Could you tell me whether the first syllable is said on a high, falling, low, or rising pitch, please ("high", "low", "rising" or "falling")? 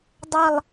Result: falling